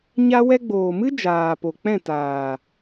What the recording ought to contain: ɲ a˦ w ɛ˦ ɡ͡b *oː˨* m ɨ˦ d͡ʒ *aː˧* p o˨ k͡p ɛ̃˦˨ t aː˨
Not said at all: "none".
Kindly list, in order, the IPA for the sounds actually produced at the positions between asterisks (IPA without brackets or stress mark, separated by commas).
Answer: oː˨, aː˨